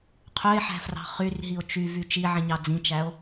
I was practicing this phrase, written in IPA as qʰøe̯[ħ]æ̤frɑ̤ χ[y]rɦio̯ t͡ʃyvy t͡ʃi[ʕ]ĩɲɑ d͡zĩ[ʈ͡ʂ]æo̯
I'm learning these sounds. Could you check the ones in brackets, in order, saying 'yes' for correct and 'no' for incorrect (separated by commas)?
yes, yes, yes, no